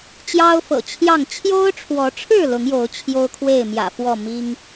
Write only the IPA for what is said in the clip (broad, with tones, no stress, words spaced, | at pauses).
t͡ɕjɑ˦ʊ̯fɤ̰˨˩ t͡ɕʰjɑ˥˨ŋ t͡ɕʰjo˦ʊ̯ʈ͡ʂʰwɔ˨˦ʈ͡ʂʰɻ̩˥˨ lʊ˨˦ŋjo˨˦ʊ̯ t͡ɕʰjo˦ʊ̯kʰwe˥˨ɪ̯mjä̰˨˩fwɔ˥˨ mi˦ŋ